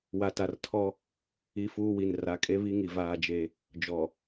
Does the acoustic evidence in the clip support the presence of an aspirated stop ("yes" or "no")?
yes